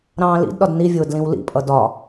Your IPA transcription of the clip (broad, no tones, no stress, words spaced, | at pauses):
ɾɑ̃ːlḭdɗɒd nivʲʊː dlĩwlḭpʼʌ dɒ